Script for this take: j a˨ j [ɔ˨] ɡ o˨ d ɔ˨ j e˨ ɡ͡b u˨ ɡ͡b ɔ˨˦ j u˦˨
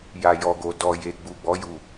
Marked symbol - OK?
yes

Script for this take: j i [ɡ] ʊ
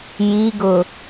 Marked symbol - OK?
yes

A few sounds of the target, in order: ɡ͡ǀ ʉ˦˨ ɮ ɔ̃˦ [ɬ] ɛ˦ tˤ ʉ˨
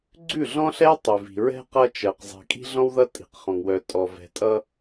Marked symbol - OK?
yes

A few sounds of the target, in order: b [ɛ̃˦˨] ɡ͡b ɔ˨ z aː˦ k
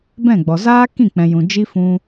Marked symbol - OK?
yes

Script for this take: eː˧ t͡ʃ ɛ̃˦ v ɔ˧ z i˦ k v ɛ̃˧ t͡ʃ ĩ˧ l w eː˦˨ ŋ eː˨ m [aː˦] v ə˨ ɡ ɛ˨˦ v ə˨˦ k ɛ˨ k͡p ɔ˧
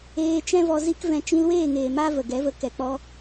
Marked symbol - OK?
yes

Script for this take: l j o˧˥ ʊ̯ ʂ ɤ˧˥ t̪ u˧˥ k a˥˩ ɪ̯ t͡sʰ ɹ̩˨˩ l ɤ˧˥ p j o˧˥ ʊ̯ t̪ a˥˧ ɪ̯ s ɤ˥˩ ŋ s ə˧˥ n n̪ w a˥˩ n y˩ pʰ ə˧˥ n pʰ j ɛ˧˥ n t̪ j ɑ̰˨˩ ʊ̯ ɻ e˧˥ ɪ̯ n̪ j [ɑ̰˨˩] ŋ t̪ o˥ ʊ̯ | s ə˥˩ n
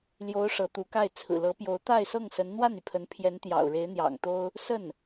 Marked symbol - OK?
yes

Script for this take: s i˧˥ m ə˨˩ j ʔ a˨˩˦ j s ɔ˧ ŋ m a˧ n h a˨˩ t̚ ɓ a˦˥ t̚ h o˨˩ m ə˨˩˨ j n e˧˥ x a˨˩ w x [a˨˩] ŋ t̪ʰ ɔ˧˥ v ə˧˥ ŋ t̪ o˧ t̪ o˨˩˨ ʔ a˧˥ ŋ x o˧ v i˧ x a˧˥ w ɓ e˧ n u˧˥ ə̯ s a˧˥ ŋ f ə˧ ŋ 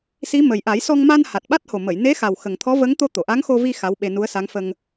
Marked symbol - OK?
no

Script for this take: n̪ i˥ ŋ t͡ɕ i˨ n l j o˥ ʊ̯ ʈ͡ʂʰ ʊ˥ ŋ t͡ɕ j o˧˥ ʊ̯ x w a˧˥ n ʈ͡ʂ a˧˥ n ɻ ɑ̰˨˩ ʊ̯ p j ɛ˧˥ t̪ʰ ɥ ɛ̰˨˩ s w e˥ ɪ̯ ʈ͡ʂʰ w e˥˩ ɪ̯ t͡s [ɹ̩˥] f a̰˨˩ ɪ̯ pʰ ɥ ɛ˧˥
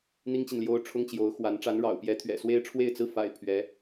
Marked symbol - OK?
yes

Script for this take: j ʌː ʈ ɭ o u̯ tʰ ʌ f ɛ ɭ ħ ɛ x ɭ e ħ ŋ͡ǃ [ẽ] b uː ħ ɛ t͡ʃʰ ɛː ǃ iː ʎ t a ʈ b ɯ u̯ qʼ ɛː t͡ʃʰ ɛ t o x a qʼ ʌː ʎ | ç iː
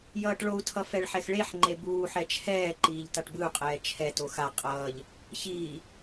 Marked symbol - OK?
no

